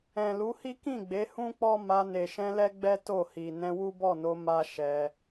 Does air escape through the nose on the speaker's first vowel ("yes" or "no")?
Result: yes